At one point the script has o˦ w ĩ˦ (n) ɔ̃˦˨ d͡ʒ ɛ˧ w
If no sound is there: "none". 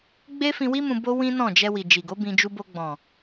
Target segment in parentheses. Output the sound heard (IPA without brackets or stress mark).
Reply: n